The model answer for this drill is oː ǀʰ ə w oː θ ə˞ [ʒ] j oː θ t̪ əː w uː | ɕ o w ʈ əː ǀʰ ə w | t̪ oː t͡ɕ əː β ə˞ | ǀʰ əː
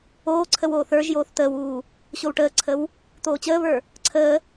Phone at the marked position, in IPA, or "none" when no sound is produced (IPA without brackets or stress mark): ʒ